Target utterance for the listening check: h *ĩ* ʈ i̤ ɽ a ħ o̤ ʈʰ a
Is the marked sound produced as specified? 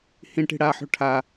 yes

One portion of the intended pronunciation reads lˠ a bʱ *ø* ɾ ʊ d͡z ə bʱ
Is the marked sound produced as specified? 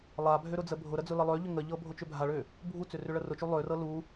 yes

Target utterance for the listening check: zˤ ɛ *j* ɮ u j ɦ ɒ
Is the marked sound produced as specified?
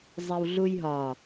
no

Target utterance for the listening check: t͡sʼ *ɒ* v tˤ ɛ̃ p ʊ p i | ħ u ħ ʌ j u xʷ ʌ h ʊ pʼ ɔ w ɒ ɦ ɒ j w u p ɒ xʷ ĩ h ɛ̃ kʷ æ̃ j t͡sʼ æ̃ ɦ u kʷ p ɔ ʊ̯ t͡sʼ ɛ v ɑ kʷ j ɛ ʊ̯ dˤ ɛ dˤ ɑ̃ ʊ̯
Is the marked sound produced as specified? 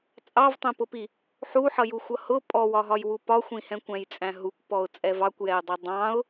no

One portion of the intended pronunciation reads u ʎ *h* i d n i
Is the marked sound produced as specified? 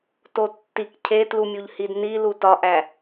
yes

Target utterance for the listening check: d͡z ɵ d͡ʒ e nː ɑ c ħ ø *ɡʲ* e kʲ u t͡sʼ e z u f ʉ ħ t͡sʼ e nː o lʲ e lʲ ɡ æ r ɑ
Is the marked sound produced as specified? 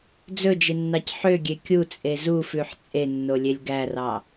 yes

